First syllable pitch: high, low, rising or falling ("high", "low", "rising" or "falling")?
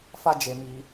high